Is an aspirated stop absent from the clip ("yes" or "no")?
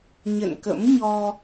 yes